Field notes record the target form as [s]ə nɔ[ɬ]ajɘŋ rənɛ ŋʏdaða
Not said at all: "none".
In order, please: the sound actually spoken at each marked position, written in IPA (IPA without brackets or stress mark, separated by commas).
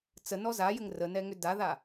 t͡s, z